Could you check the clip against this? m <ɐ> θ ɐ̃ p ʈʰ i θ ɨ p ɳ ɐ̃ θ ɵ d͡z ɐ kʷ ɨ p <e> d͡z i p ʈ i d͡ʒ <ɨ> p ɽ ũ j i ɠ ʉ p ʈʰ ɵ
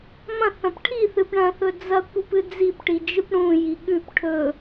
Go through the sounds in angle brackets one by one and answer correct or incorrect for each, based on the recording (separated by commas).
incorrect, incorrect, correct